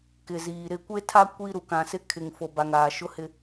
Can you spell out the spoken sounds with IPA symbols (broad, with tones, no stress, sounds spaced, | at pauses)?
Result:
k ɪ˨ z iː˨ ɾ ɪ˦˨ kʷ e˦ tʰ a˦ kʷ i˦ ɾ u˨ k ã˨ s ɪ˦ kʰ ɪ˨ ŋ f o˨ b a˨ ŋ aː˨ ʃ ʊ˦ h ɪ˦